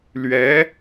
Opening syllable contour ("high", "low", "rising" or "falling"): rising